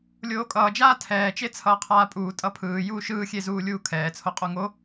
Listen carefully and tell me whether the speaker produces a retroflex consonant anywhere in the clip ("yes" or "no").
no